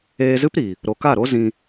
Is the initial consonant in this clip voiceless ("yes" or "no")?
no